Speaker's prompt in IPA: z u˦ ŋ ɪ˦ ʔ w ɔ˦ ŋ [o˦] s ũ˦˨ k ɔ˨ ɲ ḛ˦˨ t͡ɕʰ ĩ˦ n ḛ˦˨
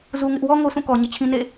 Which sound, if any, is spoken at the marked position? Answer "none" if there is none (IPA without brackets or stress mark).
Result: o˦